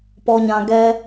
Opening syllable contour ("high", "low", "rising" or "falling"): low